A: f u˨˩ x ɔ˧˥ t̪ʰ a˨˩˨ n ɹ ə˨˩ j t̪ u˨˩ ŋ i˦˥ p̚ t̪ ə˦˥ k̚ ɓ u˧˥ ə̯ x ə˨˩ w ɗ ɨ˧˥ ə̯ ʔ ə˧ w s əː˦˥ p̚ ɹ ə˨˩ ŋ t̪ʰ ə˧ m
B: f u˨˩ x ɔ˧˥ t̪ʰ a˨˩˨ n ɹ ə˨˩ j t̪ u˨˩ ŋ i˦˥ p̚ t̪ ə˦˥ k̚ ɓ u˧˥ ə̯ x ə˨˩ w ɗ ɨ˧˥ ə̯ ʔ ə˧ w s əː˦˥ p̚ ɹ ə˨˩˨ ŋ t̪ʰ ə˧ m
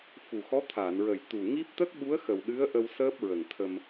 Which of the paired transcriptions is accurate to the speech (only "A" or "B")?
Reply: A